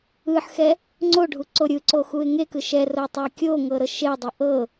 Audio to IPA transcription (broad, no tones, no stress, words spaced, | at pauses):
ɯħxɛ | ŋ͡ǀoɖʱu ǀoɾʲɯǀo xuɪ̯ŋekɯ ʃɛ rotˤɛkʲoŋɤ ɾɤʃeʊ̯dˤo ʔɤ